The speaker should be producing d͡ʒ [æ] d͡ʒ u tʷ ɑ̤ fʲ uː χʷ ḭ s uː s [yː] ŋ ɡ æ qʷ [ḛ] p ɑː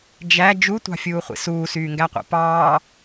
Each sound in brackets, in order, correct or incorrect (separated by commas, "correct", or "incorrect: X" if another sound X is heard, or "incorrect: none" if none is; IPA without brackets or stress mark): correct, correct, incorrect: ḭ